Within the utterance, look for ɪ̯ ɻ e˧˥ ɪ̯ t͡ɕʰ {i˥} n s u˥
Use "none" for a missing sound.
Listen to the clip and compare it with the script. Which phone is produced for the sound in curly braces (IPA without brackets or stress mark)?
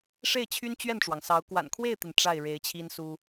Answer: i˥